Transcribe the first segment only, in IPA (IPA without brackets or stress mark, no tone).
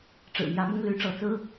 ʈ͡ʂ